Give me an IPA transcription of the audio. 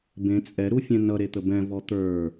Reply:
bẽ t͡sʼɛɾu fʲɛ̃nʌɾet̪ə bɛ̃vɔ t̪ə˞

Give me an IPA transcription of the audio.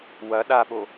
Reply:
wɐ ɗaɓo

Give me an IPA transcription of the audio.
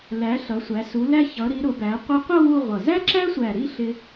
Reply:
læ˩˧ ɬʌ˩˧sʷæ˩˧ su˩˧læ˧ çʌ˩˧ɾi˩˧ ɾʊ˩˧bæ˩˧ qʷʌ˧qʷʌ˥˧ wu˥˧ʁʷʌ˧˩ zæ˥ǁæ˥ sʷæ˧˩ɾi˥˧ɬɪ˧

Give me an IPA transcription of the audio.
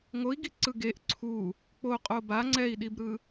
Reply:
ŋoi̯ɡi ǀɯɡeʔ ǀʰu | k͡poqʼo ba ŋ͡ǀɛi̯ɗibɾɯ

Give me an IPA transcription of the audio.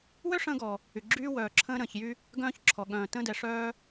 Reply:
wø˥ʂə̃ː˧ɡɔ˩ | y˩ɡ͡ǁyː˧wœː˩ ǁʰə̃ː˧ɾə̃ː˩çjy˧ | ɡœ̃ː˧çǁʰɔ˩ ɠœ̃ː˩tə̃ː˧dɛ˩ʂœː˧

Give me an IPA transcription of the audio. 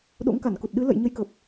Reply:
ɗo̰˧˥ŋka˧˩nku˨˩t̚ɗɨ˨˦ lə̰˧˨j ɲə˨˦jkə˨˩p̚

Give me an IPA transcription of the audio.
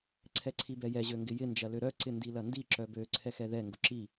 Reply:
ǀʰɛǀʰibɛjɛ ʑøŋɡɪjɪ nd͡ʒɐløɾœ ǀɪndilɐndi ǁœbø ǀʰɛxɛðɛ ŋɡʊǁi

